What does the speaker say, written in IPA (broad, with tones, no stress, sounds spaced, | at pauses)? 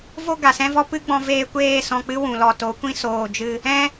v o˦ ɡ a˨ s ɛ̃˦ v ɔ˦ p ɨ˦ ɡ͡b ɔ̃˧ v eː˧ kʷ eː˦˨ s ɔ̃˧ k͡p ɨ˦ w ũ˨ l ɔ˨ t o˨˦ kʷ ĩ˦ s oː˨ d͡ʒ ɨ˧ | ɛ̃˦